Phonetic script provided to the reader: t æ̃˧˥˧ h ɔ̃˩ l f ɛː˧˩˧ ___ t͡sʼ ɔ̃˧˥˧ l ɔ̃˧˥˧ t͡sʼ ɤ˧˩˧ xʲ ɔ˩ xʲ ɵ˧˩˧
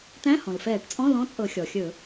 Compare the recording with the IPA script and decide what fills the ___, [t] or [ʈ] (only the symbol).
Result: ʈ